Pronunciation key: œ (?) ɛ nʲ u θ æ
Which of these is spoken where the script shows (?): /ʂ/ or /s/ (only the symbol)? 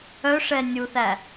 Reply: ʂ